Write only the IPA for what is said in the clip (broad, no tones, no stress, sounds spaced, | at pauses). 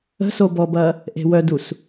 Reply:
ə̤ s o b ɔ b ɐ | ʔ e̤ w œ d u s